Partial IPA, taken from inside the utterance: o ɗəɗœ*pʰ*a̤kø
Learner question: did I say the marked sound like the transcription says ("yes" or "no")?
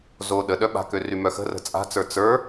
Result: no